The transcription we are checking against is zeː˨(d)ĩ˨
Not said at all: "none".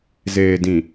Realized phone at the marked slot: d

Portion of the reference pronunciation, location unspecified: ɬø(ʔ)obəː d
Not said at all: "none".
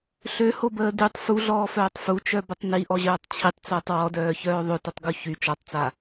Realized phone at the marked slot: h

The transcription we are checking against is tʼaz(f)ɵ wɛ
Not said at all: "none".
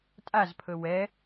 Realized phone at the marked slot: pʰ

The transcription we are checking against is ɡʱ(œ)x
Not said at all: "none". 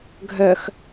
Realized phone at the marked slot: œ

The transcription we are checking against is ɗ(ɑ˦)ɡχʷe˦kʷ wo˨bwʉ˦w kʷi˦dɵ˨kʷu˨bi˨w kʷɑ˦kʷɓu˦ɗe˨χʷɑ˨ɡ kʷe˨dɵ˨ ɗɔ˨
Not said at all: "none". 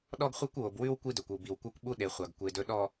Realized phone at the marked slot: ɔ˦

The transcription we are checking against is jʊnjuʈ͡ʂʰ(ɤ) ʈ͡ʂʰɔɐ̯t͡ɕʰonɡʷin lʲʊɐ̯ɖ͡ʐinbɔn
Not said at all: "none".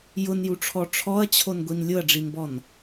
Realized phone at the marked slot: ɔ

